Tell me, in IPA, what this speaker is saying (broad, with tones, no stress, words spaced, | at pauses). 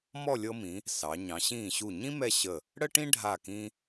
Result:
mɔ˥˧ lʲɤ˥ mĩ˩˧ | sɑ˩˧ ɲɑ̃˩˧ɕĩː˧˩ɕu˧˩ɲĩ˥ mɛ˥˧ɕə˧˩ | ɽə˥ʈĩ˥ɖʱa˧˩kĩ˧